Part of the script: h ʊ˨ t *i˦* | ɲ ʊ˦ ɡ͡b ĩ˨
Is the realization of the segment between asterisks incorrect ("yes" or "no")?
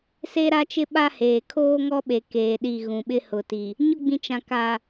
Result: yes